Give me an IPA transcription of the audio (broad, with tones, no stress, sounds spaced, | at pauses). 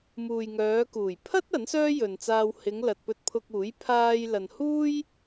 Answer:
m uː˨ j ŋ œː˨˧ k uː˨˩ j pʰ ɐ˥ t̚ ɐ˨˥ n s œː˥ j ɵ˨ n t͡s aː˧ w h ɪ˨˧ ŋ l ɐ˨ t̚ p ɵ˧ t̚ pʰ ʊ˧ k̚ uː˨˥ j pʰ aː˧ j l ɐ˨ n h uː˥ j